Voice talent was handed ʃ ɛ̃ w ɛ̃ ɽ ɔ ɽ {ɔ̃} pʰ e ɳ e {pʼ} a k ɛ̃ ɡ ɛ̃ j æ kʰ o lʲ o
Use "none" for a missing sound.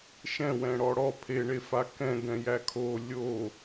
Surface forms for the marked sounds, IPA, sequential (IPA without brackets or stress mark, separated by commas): ɔ, f